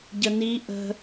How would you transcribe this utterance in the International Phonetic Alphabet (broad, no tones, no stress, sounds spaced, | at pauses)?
ɟ ə n i ʔ ə̤